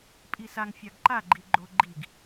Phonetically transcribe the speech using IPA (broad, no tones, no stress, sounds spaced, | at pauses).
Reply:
pʼ i s a ŋ fʲ a ɡ ǃ a ɡ͡ǃ i ɡ͡ǃ o ɡ͡ǃ i ɡ